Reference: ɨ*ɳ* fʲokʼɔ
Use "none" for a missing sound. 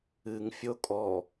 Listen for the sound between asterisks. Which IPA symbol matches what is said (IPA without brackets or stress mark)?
ŋ